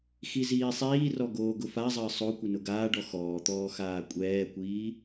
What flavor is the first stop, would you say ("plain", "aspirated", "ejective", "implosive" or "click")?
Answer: plain